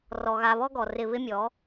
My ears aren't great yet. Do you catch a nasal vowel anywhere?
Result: no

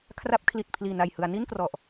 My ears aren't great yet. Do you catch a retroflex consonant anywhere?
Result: no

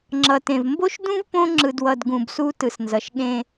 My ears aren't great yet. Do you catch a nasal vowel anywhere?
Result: yes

